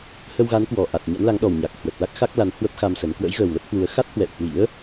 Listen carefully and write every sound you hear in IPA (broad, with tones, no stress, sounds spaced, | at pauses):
h ə˧ w ɣ a˨˦ n k w ɔ˨˩ ʔ a˨˩ t̚ ɲ a̰˧˥ n l a˨˦ ŋ ɗ ɔ˨˩ w ɲ a˨˩ k̚ h w ə˨˩ t̚ l a˦˥ k̚ x a˦˥ k̚ l a˨˦ n h w ə˦˥ p̚ x a˧ m s ə˨˦ n k w ə̰˧˥ j ɣ əː˨˩ w l ə˦˥ p̚ h w u˨˦ ə̯ x a˦˥ t̚ h w ɛ̰˧˨ w h w ḭ˧˥ ə̯